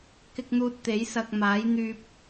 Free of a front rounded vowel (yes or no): no